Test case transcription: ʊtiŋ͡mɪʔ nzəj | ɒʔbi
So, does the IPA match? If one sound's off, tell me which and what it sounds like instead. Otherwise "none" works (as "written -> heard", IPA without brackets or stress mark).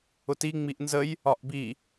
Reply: ɪ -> i